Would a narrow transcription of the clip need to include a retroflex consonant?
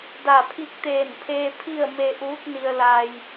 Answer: no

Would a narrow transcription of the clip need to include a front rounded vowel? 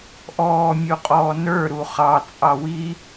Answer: no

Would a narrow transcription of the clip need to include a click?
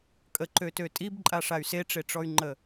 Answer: yes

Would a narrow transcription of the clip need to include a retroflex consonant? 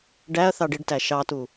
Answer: yes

